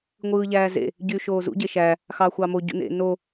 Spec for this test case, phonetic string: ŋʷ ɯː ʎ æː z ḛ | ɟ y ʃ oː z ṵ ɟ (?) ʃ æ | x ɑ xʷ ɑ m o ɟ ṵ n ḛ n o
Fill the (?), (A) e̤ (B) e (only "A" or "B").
B